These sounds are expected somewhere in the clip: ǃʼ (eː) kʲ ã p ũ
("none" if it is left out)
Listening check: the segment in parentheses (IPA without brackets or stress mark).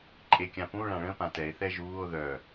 e